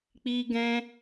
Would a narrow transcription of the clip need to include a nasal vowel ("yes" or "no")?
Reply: yes